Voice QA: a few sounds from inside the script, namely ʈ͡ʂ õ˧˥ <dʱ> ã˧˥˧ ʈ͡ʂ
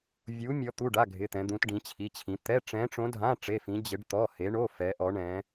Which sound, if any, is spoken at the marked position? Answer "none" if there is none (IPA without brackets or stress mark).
dʱ